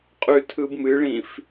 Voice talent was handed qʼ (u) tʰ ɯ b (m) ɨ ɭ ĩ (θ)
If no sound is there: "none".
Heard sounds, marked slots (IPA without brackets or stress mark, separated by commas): ʉ, m, f